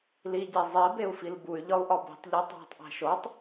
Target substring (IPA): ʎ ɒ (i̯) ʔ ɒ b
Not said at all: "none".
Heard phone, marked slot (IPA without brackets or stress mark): u̯